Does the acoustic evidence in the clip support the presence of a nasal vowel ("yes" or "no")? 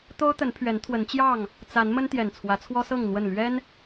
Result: no